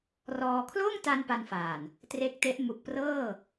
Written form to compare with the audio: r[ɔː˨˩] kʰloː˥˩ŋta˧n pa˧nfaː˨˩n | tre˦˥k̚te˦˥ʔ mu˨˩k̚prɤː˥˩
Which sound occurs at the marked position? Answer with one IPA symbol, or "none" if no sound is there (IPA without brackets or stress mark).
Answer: ɔː˧